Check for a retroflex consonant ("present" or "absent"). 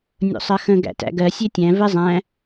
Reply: absent